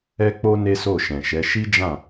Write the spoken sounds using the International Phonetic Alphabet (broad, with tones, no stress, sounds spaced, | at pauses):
ɛ˦ k͡p o˦ n e˦ s o˦˨ ʃ ɛ̃˨ ʃ ɛ˨˦ ʃ i˦ d͡ʒ ã˦˨